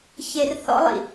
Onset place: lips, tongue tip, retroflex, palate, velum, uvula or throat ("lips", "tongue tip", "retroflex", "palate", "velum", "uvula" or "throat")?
palate